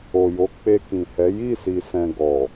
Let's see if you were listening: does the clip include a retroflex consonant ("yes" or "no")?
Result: no